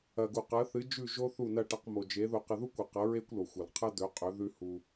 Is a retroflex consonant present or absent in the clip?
present